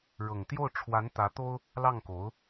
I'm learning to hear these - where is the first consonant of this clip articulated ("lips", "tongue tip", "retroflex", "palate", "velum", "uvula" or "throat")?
retroflex